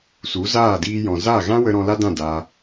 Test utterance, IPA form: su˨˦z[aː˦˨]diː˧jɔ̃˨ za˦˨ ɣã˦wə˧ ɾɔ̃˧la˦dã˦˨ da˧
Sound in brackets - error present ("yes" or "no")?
no